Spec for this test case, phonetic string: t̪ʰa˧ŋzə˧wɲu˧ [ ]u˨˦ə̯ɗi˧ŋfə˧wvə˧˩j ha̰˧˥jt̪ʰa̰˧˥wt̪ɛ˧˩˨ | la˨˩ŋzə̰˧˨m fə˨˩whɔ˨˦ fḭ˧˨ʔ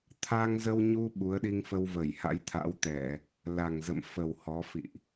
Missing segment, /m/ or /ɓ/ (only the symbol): ɓ